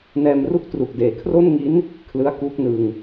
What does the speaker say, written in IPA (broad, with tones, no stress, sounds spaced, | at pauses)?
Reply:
n ɛː˧ m r u˥˩ k̚ t r u˨˩ k̚ d eː˨˩ kʰ r o˥˩ n ŋ i˦˥ n | kʰ l ɯ˦˥ a̯ k u˦˥ k̚ n ɯ˧ ŋ